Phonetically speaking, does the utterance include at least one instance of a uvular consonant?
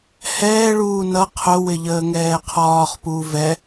yes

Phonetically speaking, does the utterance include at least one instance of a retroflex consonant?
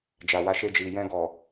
no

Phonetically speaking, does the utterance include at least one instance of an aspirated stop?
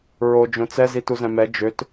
no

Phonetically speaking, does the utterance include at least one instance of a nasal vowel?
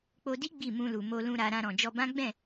yes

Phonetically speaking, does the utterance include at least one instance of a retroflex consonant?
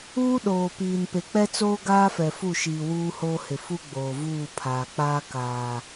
no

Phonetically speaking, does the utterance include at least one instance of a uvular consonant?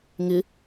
no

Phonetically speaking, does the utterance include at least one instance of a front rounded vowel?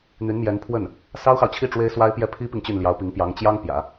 yes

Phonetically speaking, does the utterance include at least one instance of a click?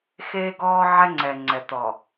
yes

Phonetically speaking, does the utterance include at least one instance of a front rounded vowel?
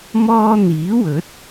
no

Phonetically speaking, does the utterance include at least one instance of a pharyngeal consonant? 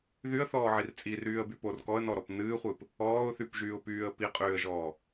yes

